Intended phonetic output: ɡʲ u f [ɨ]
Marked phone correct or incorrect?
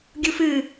correct